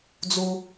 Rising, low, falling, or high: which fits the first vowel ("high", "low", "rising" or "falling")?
low